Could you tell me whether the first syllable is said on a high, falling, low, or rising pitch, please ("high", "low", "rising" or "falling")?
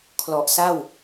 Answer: low